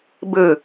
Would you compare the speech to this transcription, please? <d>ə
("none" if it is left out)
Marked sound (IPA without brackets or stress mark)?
b